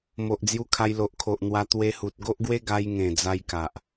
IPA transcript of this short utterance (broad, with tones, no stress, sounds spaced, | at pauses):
m o˨ ʔ d͡z j u˧ kʰ a˧ j l o˨ ʔ kʰ o˨ ʔ n̪ w a˧ t̪ w e˧ h u˨ t̚ ɡ o˦ ʔ ɡ w e˦ ɡ a˧ j ŋ ẽ˨˩ d͡z a˧ j k a˨ ʔ